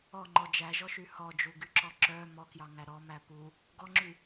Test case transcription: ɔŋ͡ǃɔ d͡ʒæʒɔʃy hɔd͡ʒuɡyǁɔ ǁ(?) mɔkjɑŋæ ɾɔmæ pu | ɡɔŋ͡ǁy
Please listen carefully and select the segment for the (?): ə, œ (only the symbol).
œ